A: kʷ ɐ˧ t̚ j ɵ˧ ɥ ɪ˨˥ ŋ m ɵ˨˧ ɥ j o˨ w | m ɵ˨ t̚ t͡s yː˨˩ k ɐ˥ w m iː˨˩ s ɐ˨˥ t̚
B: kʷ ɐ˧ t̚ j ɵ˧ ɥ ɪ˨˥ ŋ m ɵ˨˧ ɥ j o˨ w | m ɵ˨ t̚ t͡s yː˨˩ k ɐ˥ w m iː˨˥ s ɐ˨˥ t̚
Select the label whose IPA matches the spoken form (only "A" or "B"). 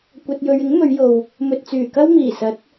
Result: A